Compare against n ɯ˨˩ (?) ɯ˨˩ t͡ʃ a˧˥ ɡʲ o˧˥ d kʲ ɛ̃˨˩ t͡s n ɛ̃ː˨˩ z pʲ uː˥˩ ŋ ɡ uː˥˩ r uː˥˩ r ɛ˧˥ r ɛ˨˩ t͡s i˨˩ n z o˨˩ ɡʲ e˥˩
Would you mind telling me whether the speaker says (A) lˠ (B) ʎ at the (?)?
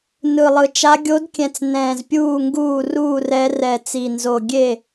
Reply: A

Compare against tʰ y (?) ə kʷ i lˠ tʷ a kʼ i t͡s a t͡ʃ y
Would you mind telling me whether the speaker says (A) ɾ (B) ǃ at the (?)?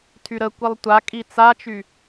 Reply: A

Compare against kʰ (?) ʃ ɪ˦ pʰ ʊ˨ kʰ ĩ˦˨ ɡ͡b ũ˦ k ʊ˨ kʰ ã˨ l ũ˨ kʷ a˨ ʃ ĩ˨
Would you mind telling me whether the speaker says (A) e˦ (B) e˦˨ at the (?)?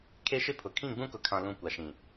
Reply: A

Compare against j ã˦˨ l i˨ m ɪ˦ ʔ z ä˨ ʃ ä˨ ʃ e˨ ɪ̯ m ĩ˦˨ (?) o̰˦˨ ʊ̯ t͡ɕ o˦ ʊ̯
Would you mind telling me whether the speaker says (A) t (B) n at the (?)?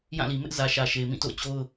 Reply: A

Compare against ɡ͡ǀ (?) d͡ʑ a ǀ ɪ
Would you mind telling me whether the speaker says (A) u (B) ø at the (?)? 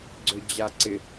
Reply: B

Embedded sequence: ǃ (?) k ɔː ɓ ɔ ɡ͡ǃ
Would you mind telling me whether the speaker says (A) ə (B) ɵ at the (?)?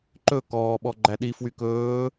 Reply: B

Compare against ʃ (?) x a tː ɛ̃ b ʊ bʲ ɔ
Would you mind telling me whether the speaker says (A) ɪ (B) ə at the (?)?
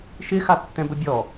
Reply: A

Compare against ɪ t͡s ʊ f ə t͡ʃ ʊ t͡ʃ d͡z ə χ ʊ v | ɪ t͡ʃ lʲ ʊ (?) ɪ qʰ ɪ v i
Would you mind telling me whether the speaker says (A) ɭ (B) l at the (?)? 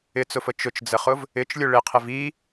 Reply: A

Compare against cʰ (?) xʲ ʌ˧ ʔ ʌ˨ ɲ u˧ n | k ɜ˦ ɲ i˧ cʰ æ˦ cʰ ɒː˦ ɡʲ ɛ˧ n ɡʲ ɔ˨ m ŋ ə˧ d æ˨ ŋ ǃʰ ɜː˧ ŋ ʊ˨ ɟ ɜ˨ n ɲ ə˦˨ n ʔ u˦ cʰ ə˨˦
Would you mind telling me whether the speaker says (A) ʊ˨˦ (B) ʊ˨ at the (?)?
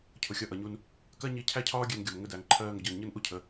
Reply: B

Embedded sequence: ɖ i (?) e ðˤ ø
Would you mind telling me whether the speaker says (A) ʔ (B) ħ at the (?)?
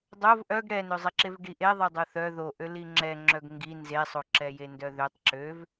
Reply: A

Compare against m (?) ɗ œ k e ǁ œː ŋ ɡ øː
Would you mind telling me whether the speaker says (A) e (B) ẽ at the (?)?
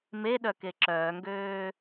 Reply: A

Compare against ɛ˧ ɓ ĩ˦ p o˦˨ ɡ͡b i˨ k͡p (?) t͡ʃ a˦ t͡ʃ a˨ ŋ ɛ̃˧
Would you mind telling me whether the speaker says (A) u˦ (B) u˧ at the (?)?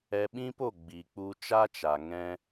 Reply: B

